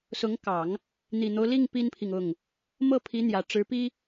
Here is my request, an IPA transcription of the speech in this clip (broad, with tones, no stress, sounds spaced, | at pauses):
s ʊ˧˥ ŋ k ɑ˨˩˦ ŋ | n̪ i˨˩ n̪ o˦ ʊ̯ l i˥˩ ŋ p i˥ n pʰ i˨ ŋ ʊ˥˩ ŋ | m ɤ˥˩ pʰ i˧˥ n̪ j ä˨˩ ʈ͡ʂ ɻ̩˧˥ p i˥